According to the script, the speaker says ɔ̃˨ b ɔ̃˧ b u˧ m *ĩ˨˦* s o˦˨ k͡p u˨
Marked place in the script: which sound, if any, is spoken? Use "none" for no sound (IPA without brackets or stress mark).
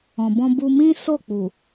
ĩ˦